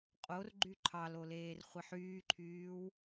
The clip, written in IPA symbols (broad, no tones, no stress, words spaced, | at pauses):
qʼorɡ͡ǃy ǃʰɑlo leːrχʷiħyːǃʰyːw